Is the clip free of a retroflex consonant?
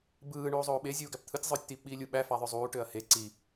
no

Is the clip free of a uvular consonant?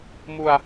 yes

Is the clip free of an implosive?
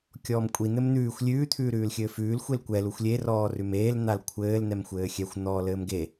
yes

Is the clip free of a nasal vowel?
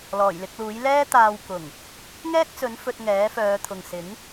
yes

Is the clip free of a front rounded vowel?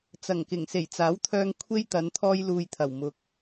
no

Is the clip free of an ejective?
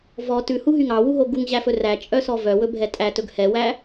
no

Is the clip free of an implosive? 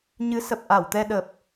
no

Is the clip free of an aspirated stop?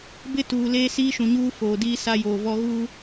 yes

